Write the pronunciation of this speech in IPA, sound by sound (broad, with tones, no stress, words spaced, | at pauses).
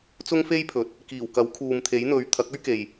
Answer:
t͡sʊ˥ŋfe˥jpʰɵ˨˥t̚ | kiː˨˩w kɐ˨˥w kʰuː˨mt̪ʰe˨˥jn̪ɵ˨˧ɥ t̪ʰɐ˨˥k̚ɵ˥ɥke˨j